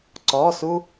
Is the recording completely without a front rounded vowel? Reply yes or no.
yes